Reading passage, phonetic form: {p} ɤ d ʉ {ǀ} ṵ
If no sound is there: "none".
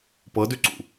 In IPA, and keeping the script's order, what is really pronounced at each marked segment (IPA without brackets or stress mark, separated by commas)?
p, ǀ